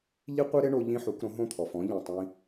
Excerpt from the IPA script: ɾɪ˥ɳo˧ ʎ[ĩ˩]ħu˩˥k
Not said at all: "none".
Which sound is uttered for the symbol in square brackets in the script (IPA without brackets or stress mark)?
ĩ˥